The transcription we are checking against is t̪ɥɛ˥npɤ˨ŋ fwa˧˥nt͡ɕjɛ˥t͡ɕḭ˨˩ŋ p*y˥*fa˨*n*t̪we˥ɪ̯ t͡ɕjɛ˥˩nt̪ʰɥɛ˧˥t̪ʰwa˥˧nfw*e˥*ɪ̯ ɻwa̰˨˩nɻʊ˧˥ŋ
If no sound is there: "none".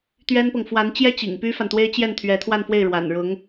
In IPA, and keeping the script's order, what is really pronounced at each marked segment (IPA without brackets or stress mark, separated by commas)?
y˥, n, e˥˩